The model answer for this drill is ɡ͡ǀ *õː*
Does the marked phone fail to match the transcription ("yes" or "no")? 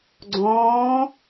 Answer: no